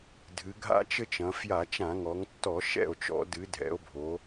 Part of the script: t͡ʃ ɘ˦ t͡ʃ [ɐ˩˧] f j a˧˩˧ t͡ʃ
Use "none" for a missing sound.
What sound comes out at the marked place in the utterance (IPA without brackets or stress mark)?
ɐ̃˩˧